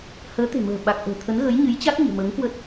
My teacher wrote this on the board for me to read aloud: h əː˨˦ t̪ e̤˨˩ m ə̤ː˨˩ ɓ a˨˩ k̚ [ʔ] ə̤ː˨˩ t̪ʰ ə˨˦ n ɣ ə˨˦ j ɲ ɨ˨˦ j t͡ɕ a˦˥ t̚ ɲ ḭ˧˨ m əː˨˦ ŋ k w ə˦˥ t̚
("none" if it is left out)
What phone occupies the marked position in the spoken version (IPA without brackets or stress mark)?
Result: ʔ